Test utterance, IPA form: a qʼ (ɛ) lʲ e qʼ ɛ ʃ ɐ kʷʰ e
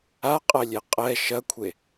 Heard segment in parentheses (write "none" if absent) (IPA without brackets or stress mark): ɛ